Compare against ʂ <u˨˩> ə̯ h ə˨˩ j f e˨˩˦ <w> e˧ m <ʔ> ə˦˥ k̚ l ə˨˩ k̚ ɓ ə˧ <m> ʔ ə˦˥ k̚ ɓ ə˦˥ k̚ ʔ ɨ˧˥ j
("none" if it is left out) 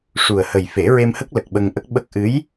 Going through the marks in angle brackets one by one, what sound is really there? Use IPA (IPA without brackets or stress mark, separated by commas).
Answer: u˨˩, ɹ, h, ŋ